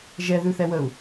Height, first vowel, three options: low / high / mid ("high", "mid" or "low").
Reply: mid